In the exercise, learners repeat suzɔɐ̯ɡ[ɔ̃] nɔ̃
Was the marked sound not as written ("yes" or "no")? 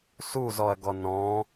yes